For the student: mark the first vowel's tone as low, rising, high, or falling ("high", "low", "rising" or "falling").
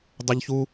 high